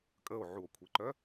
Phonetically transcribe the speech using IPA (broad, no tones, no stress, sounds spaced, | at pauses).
kʼ ə o̯ ʕ u o̯ kʷʰ e ǃ œ